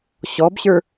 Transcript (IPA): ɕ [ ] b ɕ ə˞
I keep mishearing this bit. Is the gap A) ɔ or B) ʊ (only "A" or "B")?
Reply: A